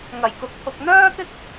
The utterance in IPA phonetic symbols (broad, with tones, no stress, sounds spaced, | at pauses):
ŋ ɐ˨˩ j k ʊ˨ k̚ t̪ʰ ʊ˨ k̚ n̪ œː˥ t̪ ɪ˥ k̚